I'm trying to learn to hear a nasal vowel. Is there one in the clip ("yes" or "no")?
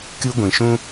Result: yes